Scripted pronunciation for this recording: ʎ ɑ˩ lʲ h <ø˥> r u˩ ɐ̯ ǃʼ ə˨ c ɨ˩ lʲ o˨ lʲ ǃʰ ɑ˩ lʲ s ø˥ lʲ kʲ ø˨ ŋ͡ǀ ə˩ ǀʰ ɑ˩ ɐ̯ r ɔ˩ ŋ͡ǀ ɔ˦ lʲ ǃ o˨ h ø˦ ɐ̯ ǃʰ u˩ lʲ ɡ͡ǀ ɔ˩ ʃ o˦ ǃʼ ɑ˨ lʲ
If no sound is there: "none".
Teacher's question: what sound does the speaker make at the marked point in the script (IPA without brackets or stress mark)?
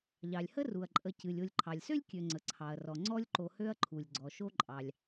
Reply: ə˥